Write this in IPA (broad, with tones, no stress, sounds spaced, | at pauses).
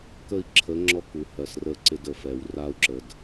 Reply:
k ə˦˨ i̯ ǁʰ ə˨˦ ŋ͡ǁ ɔ˦ k u˨ h ɜ˨ s r ə˦˨ ǀ ɪ˦ d ə˨ f ɛ˨ w r a˦ u̯ ǁ ə˨ d